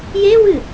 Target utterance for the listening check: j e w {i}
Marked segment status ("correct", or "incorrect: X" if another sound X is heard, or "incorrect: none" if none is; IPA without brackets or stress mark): incorrect: ɨ